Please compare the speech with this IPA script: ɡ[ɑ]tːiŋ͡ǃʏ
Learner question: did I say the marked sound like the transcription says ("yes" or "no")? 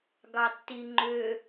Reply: yes